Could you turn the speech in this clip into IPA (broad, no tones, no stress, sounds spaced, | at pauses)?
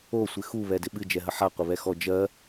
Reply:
o sʷ ɪ x u β ɛ d ɪ ɓ ɨ d͡ʒ ɛ ɦ ə ħ a qʷ ɪ β ɛ x ɔ d͡ʒ ɜ